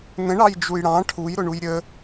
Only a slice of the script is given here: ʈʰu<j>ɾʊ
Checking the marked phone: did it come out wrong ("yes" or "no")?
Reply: no